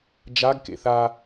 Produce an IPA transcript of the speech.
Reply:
d͡ʒ a ɡ k ḛ θ a

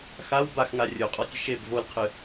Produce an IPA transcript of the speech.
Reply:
x a w b a x ŋ a rʲ o qʼ ɔ tʲ ɨ ʃ e b v o l qʰ ɨ

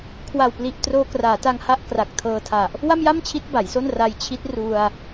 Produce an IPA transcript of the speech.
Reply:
kʰ w a˨˩ w p l i˨˩ ʔ t r oː˧ k r aː˩˦ t a˧ ŋ h a˥˩ ʔ k r a˨˩ k̚ tʰ ɤː˧ tʰ a˨˩ ʔ | w a˥˩ m j a˥˩ m t͡ɕʰ i˦˥ t̚ b a˩˦ j s o˥˩ n r a˧ j t͡ɕʰ i˦˥ t̚ r u˧ a̯

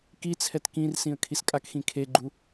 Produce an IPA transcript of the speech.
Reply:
k i t͡sʰ ɛ t k ĩ r s ĩ ə̯ kʰ i s kʼ a k x ĩ kʰ e ɡ͡ǃ u

